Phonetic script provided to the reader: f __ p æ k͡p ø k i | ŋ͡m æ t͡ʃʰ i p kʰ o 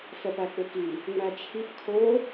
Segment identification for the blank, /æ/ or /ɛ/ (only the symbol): ɛ